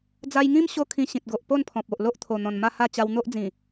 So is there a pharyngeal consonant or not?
no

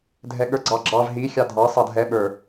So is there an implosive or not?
yes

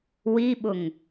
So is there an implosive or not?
yes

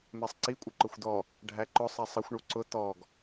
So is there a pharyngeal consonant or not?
no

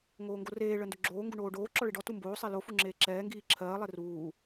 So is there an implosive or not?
no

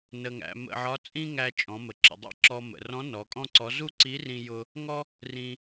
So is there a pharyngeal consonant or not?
yes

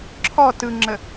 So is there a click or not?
yes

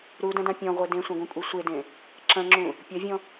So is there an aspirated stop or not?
no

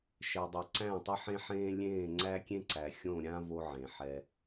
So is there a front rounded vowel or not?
no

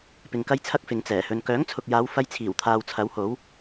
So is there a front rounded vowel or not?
yes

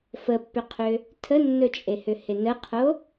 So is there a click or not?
no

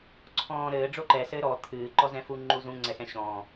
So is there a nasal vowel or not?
yes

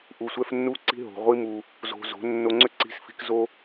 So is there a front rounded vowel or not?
yes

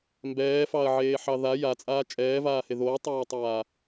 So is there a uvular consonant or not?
no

